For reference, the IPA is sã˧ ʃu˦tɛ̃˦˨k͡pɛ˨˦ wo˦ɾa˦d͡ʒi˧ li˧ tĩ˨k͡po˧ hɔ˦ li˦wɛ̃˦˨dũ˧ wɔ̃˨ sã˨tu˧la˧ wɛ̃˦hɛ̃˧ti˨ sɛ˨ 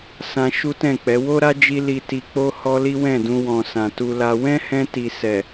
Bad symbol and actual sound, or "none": ĩ˨ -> i˨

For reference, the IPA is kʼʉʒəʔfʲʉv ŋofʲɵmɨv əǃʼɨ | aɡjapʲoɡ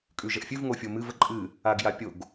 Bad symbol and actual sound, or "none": ɵ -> o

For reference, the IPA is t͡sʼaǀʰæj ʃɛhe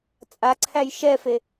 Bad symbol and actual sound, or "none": h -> f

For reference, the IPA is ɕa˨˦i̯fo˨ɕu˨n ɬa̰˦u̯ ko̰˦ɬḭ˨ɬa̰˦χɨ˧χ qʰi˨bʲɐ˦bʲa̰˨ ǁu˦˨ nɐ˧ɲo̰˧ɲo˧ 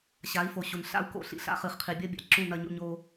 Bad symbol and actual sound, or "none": ɨ˧ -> ɨ˨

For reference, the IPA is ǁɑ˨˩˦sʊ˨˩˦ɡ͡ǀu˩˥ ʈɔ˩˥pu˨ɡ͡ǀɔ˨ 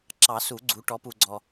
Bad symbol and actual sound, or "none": ʊ˨˩˦ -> u˨˩˦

